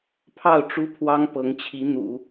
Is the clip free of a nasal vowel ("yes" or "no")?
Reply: yes